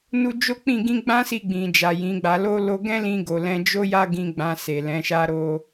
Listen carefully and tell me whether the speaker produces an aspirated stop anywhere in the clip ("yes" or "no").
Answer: no